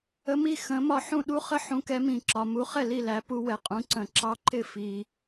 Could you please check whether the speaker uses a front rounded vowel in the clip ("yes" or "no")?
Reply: no